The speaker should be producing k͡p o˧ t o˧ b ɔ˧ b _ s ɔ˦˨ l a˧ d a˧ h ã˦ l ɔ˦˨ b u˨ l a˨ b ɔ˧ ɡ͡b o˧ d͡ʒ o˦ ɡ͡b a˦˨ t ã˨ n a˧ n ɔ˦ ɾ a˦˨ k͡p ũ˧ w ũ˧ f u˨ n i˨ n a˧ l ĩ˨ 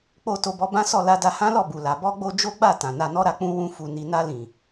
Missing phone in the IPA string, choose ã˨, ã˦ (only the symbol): ã˦